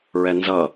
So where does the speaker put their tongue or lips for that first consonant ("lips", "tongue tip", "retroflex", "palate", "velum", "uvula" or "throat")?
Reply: tongue tip